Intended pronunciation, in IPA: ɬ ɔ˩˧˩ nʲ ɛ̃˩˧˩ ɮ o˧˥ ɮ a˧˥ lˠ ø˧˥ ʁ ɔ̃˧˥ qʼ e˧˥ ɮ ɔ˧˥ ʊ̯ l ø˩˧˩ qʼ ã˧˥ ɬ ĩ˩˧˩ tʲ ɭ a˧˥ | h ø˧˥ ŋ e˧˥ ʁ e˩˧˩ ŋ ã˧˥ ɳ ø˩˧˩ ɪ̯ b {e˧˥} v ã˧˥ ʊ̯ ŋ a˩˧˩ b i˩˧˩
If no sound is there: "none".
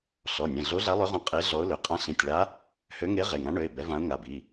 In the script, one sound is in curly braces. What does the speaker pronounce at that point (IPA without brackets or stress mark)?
ɛ˧˥